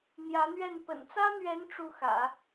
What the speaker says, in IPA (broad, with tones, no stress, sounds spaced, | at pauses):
n̪ j ä˧˥ n̪ ɥ ɛ˥˩ n p ə̰˨˩ n t͡s ä˥ n̪ ɥ ɛ˧˥ n ʈ͡ʂ u˥˩ x ä̰˨˩˦